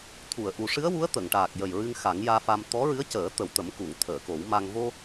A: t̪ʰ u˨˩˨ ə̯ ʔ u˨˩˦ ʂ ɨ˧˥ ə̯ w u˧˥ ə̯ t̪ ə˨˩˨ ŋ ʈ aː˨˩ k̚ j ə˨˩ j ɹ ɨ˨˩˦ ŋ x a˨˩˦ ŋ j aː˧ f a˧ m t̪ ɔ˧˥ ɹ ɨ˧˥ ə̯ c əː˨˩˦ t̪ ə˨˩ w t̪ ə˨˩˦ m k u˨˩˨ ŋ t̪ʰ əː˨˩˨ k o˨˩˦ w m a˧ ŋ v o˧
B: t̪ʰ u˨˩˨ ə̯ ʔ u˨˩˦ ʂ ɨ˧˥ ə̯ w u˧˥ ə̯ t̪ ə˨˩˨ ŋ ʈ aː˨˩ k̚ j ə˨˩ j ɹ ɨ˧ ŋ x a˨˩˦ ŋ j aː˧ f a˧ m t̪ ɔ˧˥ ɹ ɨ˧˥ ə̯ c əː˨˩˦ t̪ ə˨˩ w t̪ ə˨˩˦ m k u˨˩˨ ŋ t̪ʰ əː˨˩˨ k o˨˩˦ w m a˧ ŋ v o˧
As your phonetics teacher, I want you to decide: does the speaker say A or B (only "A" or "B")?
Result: B